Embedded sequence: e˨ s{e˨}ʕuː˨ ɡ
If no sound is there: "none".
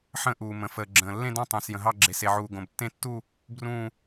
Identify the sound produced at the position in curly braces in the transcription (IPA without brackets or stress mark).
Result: e˨